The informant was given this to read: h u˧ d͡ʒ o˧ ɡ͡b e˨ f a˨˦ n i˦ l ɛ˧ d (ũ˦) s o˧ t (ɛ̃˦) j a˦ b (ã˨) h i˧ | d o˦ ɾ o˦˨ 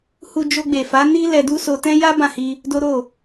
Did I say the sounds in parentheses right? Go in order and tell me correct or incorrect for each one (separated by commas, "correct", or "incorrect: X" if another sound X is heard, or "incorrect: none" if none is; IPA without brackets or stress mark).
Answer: incorrect: u˦, correct, incorrect: ã˦˨